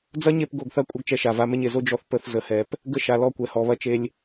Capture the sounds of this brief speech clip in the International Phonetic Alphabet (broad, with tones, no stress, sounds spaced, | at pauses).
d͡z ɐ˦ ɲ e˦˨ p ɡ o˦˨ ɡ θ ɐ˦ kʷʼ ɐ˦ ɡ t͡ʃ ɛ˧ ʃ a˨ v a˧ m e˧ ɲ e˨ z o˦ d͡ʒ ɔ˧ θ p ə˦˨ θ z ə˨ h ɛ˨ p | ɡ ə˦ ʃ a˨ l ɔ˦˨ kʷ ɛ˨ h ɔ˨ β ɐ˦ t͡ʃ e˧ lʲ